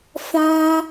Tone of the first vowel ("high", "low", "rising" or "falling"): high